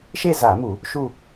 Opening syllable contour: falling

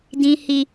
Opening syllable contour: low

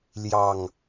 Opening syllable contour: low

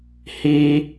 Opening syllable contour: high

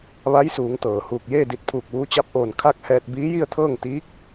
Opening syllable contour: rising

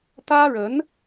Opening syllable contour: high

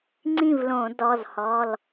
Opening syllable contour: falling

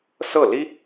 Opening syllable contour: falling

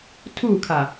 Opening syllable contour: falling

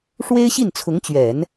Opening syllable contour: high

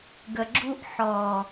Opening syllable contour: high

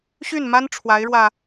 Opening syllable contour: falling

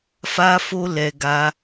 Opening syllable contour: high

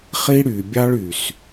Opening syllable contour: high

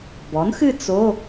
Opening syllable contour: rising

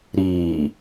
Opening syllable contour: low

